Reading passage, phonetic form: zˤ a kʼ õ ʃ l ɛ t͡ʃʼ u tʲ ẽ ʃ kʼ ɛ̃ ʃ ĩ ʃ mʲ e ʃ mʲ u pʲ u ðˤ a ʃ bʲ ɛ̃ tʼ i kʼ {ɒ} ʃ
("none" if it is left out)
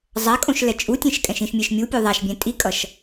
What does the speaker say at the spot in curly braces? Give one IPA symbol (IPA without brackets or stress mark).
ʌ